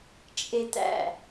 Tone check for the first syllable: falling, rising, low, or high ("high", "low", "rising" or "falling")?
high